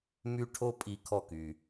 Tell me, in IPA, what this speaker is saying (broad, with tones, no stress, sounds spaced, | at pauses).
m y˥ ʈʰ o˥ pʼ i˧ kʰ ɔ˧ k y˩